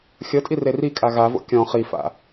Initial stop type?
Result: ejective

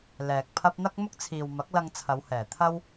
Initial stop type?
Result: plain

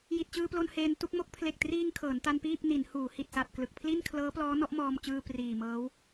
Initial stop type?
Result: plain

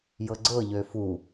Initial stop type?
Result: click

